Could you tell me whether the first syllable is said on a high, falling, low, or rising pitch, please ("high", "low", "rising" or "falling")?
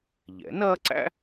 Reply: rising